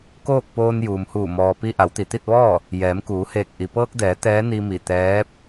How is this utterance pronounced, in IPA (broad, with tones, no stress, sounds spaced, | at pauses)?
k oː˥˨ k̚ p oː˧ n j uː˩ m h uː˧˩ m ɔː˩ p i˧ ʔ a˩˧ w t̪ i˩ t̪ i˥˨ t̚ ʋ ɔː˥˨ | j ɛː˩˧ m k uː˩˧ h eː˧˩ k̚ ʔ i˩ p ɤː˧ k̚ d ɛː˩˧ t̪ ɛː˧˥ n i˧ m i˧˩ t̪ ɛː˧˥ p̚